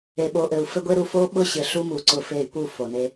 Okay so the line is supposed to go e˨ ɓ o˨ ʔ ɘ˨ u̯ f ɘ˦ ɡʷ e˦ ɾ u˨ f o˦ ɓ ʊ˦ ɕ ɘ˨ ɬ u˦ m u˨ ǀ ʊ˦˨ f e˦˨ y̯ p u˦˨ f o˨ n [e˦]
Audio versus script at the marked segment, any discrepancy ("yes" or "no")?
no